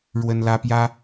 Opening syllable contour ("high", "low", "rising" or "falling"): high